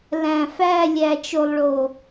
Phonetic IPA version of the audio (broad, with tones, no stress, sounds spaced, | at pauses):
l æ̃˨ f æ˦˨ lʲ æ˨ t͡ʃ o˨ lˠ ɭ o˨